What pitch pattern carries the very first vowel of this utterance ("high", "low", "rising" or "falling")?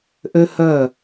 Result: high